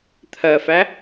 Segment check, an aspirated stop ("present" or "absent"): present